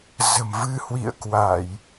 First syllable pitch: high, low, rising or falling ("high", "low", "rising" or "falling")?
low